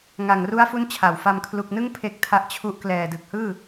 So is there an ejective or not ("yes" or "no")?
no